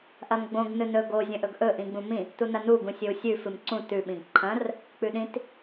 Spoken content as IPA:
ʔ ɐ m ɡ͡b õ ɡ n ɨ n ɵ ɡ o zʲ ɐ̃ ʔ ɵ ɡ ʔ ɵ ʔ ĩ ɡ͡b ũ m ĩ | t u n ɐ n u ɡ ũ sʲ ɵ u̯ sʲ ʉ f ɨ m ǀ ũ t ʉ ɓ ĩ ɡ ǃʰ ɐ̃ r | k͡p ʉ ɗ ĩ t

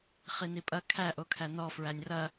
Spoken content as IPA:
χ i n i pʼ ɐ kʰ æ ʔ o kʰ æ n ɔ f ɹ æ nʲ r ɐ

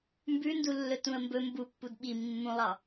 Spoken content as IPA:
m b ʉ n d u lː ɵ t ũ ə̯ m b ɵ m b u pː u d ɓ i mː ũ lˠ ɑ

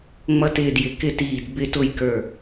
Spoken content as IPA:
ŋ͡m ʌ˥ t ɪː˥˧ d j ɪ˧˩ k ɪ˥˧ t iː˧˩ d b ɪ˥˧ t ʊ˥˧ j k ə˞˧˩

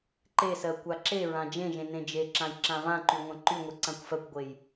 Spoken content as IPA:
ǃ e s ɜ kʷ a ǁ e ɹ ã d͡ʒ ẽ ʒ ẽ n ẽ d͡ʒ e ǁ ã j ǁ ã v ã ǃ y ŋʷ ã ǃ y ŋʷ i ǀ ã kʷ f ɜ kʷ ɡʷ e j

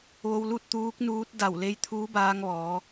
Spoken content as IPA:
ʋ o˧ w l u˥˨ t̚ t̪ uː˧˥ k̚ n uː˧˥ t̚ d a˧˩ w l e˧ j t̪ʰ uː˧˥ b aː˧ ŋ ʋ ɔː˩˧

